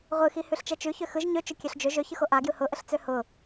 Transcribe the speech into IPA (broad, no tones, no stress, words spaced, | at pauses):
ʁʷɯxi hʉɬt͡ʃɛt͡ʃʉ çøxɯʒ ɲøt͡ʃʊ kʲøɬd͡ʒø ʒøçɯxo ʔaɡjɯ hʊʔəɬt͡sø hʊ